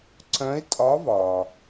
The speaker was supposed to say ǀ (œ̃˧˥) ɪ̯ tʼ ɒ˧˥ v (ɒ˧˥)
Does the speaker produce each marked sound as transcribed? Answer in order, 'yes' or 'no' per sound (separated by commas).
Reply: yes, no